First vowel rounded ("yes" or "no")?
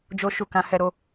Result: yes